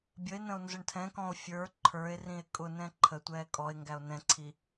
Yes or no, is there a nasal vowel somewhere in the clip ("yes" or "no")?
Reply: yes